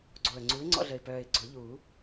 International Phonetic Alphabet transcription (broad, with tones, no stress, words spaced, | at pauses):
ɡ͡ǀo˨˩ə̯ŋ͡ǀu˨˥ɪ̯ ŋ͡ǀɔ̰˦ɮə˨˩ɪ̯pœː˨˩ɪ̯ ɡ͡ǀʊ˨˩˦ʎu˨˩˦